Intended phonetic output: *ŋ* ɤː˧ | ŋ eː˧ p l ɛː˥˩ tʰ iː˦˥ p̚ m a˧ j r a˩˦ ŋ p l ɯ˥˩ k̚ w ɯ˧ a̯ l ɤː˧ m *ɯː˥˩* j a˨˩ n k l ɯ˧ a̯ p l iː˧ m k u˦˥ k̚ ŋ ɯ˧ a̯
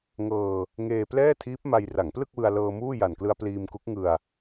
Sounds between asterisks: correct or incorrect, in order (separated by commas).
correct, incorrect